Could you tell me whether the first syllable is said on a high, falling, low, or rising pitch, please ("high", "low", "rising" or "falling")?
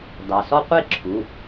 low